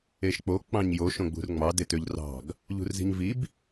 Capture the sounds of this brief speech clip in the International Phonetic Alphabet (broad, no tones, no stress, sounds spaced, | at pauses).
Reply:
e ʃ k͡p o k͡p ɑ̃ ɲ j o ʃ õ ɡ͡b ṳ r ŋ͡m ɑ d e t ø ʎ r ɑ̤ ɡ | ʎ ṳ r z i̤ ɲ v i b